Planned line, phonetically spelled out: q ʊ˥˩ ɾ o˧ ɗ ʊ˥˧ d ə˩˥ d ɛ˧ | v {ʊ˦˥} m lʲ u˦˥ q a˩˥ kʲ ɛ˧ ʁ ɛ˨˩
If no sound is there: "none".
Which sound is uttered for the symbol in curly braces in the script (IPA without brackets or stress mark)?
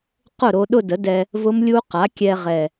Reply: ʊ˦˥